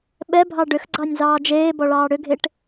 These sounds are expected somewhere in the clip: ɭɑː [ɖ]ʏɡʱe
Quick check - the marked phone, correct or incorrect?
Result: incorrect